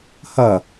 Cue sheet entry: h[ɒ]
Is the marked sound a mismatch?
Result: yes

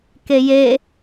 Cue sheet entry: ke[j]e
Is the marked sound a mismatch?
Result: no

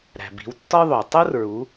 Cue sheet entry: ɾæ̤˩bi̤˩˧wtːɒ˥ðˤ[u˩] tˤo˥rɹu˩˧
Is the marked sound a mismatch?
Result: yes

